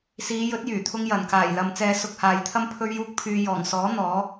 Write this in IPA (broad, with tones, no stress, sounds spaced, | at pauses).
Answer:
s iː˨˧ j ɵ˨˥ t̚ j yː˨˩ t̪ʰ ʊ˥ ŋ j ɐ˨˩ n k aː˨˩ j l ɐ˨ m t͡s ɛː˧ s ʊ˧ k̚ h aː˨ j t̪ʰ ɐ˥ m pʰ ɵ˥ ɥ j uː˥ k̚ pʰ yː˧ j ɔː˨˩ ŋ s ɔː˨˥ n̪ ɔː˨˥